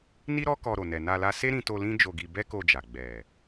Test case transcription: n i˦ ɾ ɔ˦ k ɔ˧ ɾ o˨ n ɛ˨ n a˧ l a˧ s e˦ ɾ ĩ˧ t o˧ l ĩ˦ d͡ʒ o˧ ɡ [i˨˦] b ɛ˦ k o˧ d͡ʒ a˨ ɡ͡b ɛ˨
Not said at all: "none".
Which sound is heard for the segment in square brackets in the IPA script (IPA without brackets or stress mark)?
i˧